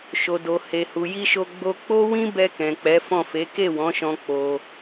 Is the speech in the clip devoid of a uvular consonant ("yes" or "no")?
yes